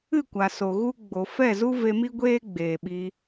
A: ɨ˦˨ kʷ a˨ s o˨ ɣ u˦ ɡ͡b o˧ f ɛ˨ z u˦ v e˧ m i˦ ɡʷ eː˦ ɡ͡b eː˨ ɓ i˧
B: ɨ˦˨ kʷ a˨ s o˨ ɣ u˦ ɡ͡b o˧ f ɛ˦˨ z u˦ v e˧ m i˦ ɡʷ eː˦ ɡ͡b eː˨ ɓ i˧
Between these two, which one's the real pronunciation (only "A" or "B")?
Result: B